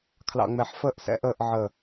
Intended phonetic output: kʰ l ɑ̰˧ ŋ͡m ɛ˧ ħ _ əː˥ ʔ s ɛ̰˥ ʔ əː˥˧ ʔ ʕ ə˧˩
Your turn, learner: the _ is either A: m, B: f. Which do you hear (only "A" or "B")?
B